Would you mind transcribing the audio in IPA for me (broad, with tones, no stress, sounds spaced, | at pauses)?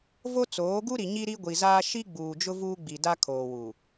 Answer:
v o˦ t͡s oː˨˦ ɡ u˦ ɾ i˨ ɲ i˦ ɾ i˦ ɡʷ i˨ z aː˦ ʃ i˦ ɡ͡b uː˨ d͡ʒ ʊ˦ v uː˦ ɡ͡b i˨ d a˦ kʰ oː˨ w u˨